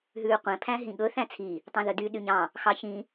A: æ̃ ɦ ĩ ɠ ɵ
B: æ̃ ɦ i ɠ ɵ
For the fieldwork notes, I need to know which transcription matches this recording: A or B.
A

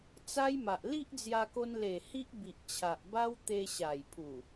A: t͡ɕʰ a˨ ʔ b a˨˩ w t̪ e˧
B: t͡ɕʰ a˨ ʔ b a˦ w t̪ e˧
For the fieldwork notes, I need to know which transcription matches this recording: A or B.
B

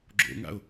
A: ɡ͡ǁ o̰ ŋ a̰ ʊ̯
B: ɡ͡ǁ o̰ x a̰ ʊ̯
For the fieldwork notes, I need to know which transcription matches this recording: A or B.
A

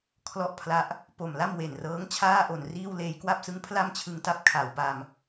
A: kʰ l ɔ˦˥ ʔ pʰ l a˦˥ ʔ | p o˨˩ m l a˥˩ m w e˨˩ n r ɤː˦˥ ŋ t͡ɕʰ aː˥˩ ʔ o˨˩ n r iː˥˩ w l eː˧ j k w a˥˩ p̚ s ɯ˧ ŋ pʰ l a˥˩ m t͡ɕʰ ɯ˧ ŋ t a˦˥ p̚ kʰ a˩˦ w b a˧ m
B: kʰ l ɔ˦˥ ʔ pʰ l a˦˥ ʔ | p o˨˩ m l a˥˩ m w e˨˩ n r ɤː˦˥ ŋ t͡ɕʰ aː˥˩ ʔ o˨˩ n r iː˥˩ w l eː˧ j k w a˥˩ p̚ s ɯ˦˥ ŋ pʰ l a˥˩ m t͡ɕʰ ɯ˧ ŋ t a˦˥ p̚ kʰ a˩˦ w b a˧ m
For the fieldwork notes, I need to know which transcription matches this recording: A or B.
B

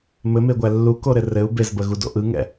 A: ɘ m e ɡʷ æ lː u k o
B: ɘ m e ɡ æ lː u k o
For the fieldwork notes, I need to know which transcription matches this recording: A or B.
A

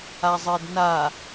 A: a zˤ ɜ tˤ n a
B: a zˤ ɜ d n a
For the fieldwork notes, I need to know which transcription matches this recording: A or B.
B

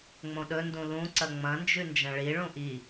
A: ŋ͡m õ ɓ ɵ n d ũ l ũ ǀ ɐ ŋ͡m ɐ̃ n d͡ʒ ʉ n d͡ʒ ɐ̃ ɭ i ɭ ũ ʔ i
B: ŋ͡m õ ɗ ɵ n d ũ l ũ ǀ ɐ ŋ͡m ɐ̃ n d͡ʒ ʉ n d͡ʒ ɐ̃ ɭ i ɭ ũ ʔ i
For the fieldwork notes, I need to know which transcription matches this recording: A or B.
B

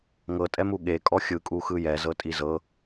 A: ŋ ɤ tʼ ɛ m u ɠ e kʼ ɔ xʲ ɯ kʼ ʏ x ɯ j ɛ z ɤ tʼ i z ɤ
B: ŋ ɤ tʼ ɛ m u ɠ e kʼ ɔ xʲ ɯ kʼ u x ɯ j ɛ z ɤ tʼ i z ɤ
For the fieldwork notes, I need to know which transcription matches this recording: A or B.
B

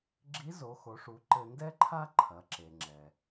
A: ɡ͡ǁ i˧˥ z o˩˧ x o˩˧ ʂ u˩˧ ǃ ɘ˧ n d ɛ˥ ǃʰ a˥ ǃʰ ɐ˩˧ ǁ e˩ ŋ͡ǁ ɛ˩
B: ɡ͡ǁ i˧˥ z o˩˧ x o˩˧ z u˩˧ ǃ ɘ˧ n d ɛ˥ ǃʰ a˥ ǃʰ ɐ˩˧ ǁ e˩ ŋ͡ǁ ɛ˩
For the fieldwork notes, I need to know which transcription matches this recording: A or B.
A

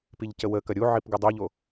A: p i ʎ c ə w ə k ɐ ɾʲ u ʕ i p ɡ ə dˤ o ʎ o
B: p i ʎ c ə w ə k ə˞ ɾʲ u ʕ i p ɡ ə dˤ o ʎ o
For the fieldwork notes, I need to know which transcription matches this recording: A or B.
A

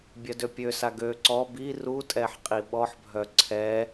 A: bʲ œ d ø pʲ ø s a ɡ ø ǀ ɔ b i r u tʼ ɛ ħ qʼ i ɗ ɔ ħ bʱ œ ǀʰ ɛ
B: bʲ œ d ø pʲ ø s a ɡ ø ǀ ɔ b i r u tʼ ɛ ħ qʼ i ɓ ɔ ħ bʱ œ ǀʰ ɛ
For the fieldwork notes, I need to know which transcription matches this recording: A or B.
B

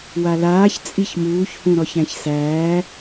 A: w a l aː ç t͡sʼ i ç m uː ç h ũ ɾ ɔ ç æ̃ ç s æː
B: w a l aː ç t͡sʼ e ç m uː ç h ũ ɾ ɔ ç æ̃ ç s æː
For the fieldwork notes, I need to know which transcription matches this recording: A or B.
A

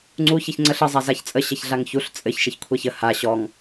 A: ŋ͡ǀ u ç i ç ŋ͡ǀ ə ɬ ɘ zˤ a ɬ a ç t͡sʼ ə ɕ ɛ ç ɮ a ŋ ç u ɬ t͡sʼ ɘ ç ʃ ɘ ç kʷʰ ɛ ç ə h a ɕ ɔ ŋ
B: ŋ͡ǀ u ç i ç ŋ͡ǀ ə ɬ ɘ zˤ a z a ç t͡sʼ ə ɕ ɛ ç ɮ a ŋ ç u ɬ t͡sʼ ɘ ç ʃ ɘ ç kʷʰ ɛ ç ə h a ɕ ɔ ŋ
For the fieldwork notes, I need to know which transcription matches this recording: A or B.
B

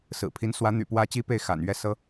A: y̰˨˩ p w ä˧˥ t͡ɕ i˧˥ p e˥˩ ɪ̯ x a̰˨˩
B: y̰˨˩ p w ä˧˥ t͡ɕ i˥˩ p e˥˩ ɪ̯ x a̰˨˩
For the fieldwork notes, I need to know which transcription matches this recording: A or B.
A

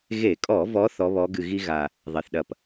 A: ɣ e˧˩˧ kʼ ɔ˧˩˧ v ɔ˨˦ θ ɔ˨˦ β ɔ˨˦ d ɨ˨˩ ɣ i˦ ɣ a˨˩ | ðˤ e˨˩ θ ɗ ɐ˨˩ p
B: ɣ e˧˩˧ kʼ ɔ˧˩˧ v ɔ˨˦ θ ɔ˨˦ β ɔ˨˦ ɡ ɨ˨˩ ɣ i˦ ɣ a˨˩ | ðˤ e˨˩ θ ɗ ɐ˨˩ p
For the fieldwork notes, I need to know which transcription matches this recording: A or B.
B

